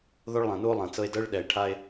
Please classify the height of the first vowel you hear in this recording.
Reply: mid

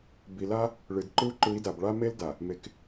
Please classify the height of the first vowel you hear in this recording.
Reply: high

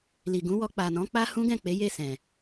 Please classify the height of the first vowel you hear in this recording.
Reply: high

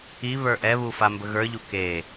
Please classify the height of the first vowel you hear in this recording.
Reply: high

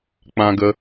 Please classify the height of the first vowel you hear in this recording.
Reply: low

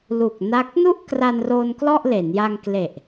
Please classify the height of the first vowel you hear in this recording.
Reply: high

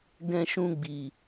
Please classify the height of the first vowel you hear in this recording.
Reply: mid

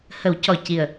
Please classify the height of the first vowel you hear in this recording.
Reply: mid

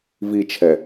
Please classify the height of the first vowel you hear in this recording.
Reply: high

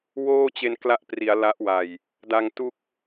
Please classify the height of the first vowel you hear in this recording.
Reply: mid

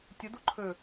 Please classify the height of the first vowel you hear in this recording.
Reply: mid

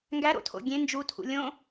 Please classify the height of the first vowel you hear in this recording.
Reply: low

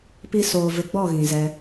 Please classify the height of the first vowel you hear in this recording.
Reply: high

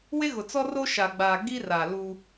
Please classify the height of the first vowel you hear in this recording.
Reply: mid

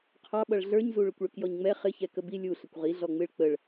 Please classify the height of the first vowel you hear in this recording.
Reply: low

